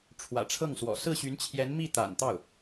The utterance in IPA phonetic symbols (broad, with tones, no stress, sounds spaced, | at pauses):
ʈ͡ʂʰ w ä̰˨˩ ʈ͡ʂʰ ɤ˥˩ ŋ s w ɔ̰˨˩ s ɹ̩˥˩ ɕ y˧˥ n t͡ɕʰ j ɛ˧˥ n m i˥˩ t̪ a̰˨˩ n t̪ ɑ˥˩ ʊ̯